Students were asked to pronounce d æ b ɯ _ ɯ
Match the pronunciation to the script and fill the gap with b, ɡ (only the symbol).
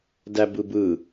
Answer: b